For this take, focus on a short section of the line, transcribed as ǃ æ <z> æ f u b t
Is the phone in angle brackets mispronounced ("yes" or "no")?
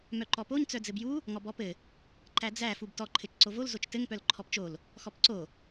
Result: yes